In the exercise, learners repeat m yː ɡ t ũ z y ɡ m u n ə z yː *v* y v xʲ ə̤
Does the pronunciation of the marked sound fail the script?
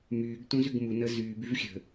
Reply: yes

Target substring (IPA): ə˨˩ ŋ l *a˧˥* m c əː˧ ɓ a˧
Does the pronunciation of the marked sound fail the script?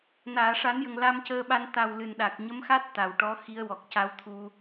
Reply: yes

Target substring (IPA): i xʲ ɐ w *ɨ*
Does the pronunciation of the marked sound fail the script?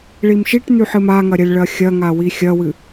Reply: no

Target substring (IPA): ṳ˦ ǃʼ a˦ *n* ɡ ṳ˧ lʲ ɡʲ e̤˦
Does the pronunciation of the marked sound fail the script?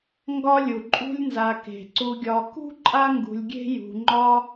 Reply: yes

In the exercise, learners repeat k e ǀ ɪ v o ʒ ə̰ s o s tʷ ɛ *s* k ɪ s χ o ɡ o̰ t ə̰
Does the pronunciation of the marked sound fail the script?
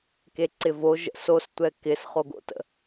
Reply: yes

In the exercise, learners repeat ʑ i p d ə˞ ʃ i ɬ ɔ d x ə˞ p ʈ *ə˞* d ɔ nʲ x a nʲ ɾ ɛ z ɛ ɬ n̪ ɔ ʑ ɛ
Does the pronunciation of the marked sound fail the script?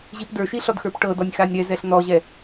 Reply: yes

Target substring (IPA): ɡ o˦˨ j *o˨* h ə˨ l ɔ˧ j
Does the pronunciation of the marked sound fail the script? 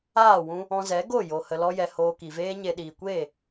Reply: no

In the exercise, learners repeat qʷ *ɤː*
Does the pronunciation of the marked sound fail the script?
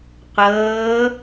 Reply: no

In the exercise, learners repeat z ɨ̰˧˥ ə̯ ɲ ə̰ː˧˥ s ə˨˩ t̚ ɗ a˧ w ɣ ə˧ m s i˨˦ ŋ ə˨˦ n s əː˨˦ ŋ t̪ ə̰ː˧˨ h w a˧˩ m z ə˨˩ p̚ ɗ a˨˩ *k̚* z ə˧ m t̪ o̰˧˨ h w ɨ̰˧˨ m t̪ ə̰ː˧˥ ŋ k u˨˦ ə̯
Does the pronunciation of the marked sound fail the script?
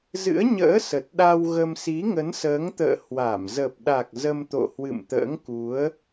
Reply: no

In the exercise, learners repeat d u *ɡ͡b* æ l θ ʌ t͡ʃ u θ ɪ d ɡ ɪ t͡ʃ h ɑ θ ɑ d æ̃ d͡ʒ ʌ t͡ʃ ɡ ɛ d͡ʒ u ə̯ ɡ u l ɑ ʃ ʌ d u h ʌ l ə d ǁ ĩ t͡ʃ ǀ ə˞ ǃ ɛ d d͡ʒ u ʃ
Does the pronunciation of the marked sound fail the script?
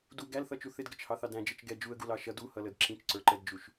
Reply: yes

